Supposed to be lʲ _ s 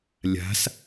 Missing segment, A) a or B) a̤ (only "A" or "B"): B